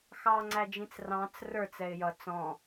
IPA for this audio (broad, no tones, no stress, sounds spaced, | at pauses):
x ɑ ŋ͡ǀ æ d͡ʒ ĩ t͡s r ɑ̃ t͡s r ə˞ t͡s ɛ ɪ̯ j ʌ t͡s ɔ̃